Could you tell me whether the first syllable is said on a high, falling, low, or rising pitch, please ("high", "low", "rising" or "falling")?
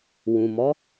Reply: low